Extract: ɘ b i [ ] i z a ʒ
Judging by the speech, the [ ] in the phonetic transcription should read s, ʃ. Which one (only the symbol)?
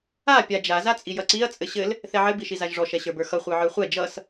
ʃ